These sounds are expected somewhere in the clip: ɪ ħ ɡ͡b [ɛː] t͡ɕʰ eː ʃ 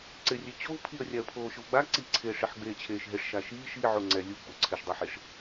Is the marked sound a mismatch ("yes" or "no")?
yes